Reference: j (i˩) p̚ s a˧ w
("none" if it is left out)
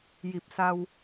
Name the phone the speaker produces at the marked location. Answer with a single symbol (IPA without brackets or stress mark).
i˧˩